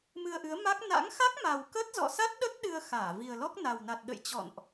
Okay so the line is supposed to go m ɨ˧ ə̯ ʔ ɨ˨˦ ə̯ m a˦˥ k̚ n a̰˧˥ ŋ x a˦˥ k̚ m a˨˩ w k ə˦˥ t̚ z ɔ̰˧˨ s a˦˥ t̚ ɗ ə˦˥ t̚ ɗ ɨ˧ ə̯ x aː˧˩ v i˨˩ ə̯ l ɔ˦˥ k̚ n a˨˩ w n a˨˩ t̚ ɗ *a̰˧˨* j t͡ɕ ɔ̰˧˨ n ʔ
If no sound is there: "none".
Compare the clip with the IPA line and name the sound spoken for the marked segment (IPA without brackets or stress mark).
ə̰˧˨